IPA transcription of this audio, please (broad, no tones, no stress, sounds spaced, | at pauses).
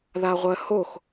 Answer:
ð a ʁʷ ɜ h o x